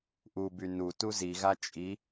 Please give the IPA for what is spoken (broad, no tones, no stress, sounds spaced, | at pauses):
ʔ u b y n u t u z i ɣ a t͡ʃʼ i